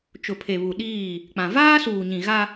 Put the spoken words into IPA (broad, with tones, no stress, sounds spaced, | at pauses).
t͡ʃ ʊ˨ pʰ e˨ β u˨ ɗ iː˦˨ | k͡p ã˨ v aː˦ s uː˨ ɲ ĩ˨ ɣ a˦